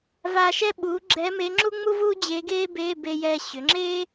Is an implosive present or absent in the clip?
present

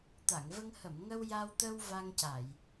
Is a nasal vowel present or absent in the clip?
absent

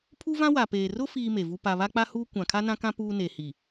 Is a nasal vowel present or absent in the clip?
present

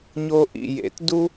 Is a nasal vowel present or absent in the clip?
absent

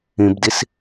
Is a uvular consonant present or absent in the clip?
absent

